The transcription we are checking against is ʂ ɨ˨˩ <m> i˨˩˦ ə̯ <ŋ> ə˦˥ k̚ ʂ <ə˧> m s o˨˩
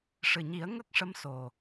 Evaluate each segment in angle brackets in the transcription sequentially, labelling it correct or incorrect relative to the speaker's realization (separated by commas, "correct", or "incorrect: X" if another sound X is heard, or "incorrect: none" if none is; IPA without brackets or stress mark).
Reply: incorrect: ɲ, correct, incorrect: ə˧˥